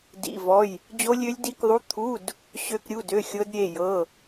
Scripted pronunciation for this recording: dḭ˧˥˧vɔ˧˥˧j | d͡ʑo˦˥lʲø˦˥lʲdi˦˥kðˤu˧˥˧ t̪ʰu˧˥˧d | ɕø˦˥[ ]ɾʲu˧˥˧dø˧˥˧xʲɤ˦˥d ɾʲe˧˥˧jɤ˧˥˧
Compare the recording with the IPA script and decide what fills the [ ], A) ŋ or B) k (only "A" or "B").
B